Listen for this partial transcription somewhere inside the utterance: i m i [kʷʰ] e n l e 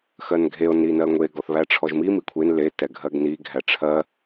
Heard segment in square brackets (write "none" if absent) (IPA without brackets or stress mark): kʷʰ